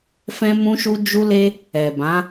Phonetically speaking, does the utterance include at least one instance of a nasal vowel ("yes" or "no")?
yes